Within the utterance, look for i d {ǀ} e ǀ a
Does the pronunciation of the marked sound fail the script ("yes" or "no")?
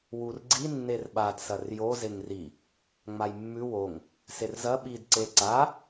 no